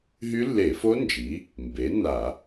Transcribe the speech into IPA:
ɦ y˦˥ lː e˧˩˧ f o˦˥ n d͡ʒ i˩˥ | m b e˩˥ n a˧˩˧

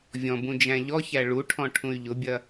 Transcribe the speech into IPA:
vʲ ɔ̃ b ũ d͡ʒ æ̃ ʎ ɔ ç æ ɭ u ʈʰ ɔ̃ ʈʰ ũ y̯ ʎ ʊ bʲ ɐ

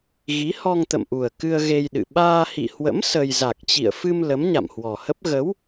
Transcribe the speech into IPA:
ɣ i˨˦ h ɔ˧ ŋ t̪ ə̰˧˨ m ʔ u˨˩ ə̯ k ɨ˧ ə̯ ɣ e˧ j ɗ ɨ̰˧˨ ɓ aː˧ h ḭ˧˨ h w ə̰˧˥ m s ə˧ j z a˨˩ k̚ t͡ɕ ḭ˧˨ ə̯ f ɨ˧ m l ə˨˦ m ɲ a̰˧˨ m h w ɔ˨˩ h ə˦˥ p̚ ɣ ə˨˦ w

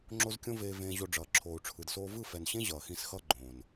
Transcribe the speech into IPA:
ŋ͡ǁ o˦ z kʲ õ˦ v eː˧ v ẽː˧ ʑ o˧ ɖ͡ʐ ʌː˨ ǁʰ oː˨ u̯ ʈ͡ʂʰ ɯ˨ d s oː˧ v ɯ˦˨ f ɛ˨ n ɕ ẽ˦ ʑ ʌː˨ x ĩ˧ s x ʌ˦ ɡ͡ǃ õː˨ n

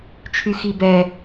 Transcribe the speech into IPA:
t͡ʃʰ y x i b ɛ

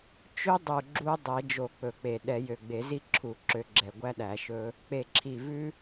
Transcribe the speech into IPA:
t͡ʃ ø˦ dˤ u˨˩ ɡ͡ǁ u˦ dˤ ɛ˨˩˦ d͡ʒ o˨˩˦ k͡p ɵ˨˩˦ k͡p e˨˩ ɗ ɛ˨˩˦ j ø˨˩ ɡ͡b e˨˩˦ z i˦ ǁʰ u˨˩ ǁ ø˨˩˦ ɡ͡ǁ ɛ˨˩ ɡʷ æ˦ ɗ æ˨˩˦ ʃ ɵ˦ | k͡p e˨˩ ǁʰ i˨˩ v ʉ˦

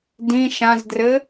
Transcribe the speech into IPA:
d ĩ ʃ ã z d r ɘ

